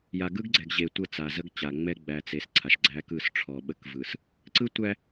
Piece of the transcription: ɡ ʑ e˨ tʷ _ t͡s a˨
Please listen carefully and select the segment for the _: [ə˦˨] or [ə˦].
ə˦˨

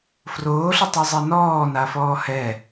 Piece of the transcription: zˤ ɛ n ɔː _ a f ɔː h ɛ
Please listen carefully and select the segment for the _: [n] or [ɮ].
n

